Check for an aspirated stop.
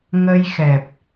absent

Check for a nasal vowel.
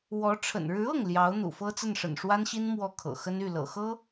absent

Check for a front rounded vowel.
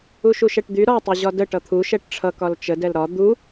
present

